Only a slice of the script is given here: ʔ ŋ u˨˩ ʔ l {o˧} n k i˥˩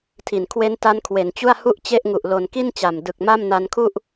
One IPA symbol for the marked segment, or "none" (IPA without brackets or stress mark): o˨˩